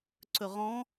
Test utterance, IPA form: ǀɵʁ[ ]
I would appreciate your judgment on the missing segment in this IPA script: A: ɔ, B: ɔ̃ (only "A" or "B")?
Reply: B